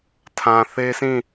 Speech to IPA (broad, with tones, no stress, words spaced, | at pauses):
tʰã˨ θe˦sĩ˦˨